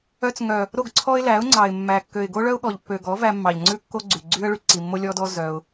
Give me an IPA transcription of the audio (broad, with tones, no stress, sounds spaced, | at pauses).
œ˧ t͡s ŋ œ˨ | ɾ o˦˨ ɡ ǀʰ ɔ˦ ɪ̯ l æ˨˦ ʊ̯ ŋ͡ǀ ɑ˨ ɪ̯ mː æ˨ kː ø˨ ɪ̯ ɡ o˦ ɭ œ˦ ʊ̯ ɠ ɔ˨ ʎ pː ø˨ ɡ ɔ˨˦ v æ˧ mː ɑ˨ ʎ ŋ͡ǀ ʉ˦ kː o˦ ɡ͡ǀ y˨ ɡ͡ǀ y˦ ə̯ ɭ y˧ ǀ i˨ mː o˦ lʲ ɔ˦ d ɔ˦ z œ˧ ʊ̯